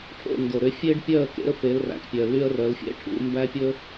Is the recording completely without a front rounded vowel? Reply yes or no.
no